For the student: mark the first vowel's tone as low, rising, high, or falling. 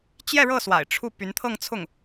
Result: falling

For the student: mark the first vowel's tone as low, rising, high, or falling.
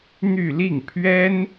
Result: falling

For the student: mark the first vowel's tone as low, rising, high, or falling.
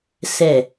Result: low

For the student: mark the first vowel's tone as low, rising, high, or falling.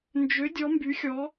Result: rising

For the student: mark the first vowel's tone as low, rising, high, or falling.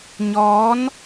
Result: rising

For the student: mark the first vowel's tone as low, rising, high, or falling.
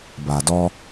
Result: low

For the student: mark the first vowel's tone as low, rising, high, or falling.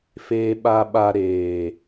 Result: low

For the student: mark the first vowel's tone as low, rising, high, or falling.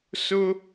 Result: high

